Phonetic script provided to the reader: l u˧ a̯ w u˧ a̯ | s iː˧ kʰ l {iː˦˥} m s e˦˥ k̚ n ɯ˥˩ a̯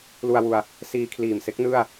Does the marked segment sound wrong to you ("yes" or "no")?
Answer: yes